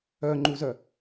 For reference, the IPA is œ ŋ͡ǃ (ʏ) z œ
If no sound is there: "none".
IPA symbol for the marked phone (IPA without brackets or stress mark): u